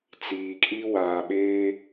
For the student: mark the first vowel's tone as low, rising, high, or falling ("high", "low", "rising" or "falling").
low